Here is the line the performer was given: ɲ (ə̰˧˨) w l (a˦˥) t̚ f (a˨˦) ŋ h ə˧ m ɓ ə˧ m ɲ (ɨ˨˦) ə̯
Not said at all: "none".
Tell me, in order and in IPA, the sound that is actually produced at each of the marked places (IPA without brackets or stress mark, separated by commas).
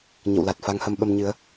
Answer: ə̰˧˨, a˨˩, a˨˦, ɨ˨˦